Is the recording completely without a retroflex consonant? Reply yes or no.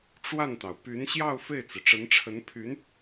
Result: no